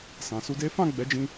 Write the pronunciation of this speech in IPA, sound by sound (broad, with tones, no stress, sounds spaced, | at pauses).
s ã˨ s u˧ d e˦ f ã˦˨ ɡ͡b ɛ˨˦ d͡ʒ ĩ˧